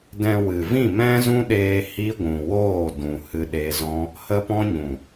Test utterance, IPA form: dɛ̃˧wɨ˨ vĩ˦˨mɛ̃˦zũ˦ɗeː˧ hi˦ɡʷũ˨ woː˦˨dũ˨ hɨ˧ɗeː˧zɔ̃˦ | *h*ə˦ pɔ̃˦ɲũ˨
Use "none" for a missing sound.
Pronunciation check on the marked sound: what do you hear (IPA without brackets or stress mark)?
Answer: h